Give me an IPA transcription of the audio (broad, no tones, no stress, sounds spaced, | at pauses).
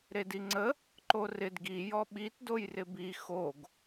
ɾ e d i ŋ͡ǀ ə | ǃ o r ɪ d ɡ i j ɔ ɓ i t d o j r ɪ b i x o ɡ